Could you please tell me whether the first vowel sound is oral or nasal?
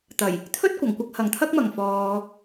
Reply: oral